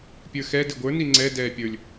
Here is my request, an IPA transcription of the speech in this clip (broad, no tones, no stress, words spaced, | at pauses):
pʲə˞xɛ dɪɡʷə˞ niŋ͡ǀɛ dɛːpʲə˞lʲ